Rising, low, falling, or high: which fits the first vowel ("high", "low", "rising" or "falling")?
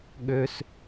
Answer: high